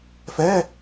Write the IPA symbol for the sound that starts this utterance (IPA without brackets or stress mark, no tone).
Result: f